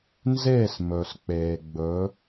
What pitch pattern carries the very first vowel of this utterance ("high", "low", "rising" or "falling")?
falling